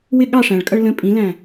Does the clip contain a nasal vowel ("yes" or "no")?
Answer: yes